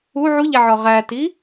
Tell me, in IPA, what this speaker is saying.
u ʕ u ʎ æ ʕ ɒ ʁ æ t i

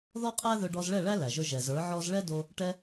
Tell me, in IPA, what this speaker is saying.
ð ɔ˦ qʼ æ˦ ð ɵ˧ ɖ ɔ˧ z ɭ ɛ˦˨ ɭ æ˦ l æ˨ ʒ ɵ˧ ʒ ɛ˨ z ə˞˨˦ ʕ ɔ˦ z ɭ ɛ˦ d o˧ | ʈ ɛ˧

